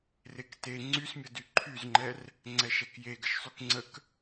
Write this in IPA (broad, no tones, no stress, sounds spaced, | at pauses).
r e k t e ŋ͡ǀ y s mʲ ə d y ǃʰ y z ŋ͡ǃ ɛ r | ŋ͡ǀ ɛ ʃ ɛ k j e ɡ ə ʃ sˤ y k ŋ͡ǀ ə k